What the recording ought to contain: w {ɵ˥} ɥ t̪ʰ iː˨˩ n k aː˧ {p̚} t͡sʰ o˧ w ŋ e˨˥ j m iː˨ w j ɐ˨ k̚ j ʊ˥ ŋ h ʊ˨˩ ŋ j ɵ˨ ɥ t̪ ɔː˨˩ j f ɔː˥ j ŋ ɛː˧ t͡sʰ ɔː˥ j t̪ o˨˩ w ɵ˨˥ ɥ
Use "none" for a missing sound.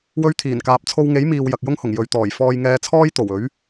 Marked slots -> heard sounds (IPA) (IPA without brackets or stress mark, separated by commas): ɵ˥, p̚